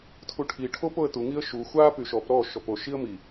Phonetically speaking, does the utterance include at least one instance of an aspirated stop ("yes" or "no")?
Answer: yes